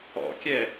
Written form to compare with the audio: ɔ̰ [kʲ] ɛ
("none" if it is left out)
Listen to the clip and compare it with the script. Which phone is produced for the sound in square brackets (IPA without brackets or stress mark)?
kʲ